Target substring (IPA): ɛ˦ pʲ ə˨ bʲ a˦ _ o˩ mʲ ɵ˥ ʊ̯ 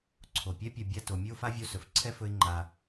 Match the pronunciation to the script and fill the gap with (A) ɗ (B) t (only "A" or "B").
B